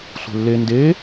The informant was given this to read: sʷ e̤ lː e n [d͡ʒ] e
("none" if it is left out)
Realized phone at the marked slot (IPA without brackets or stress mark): d